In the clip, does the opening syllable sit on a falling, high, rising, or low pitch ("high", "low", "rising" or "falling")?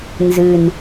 low